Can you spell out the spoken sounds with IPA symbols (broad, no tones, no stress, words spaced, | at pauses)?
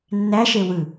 nːæʃe wɯ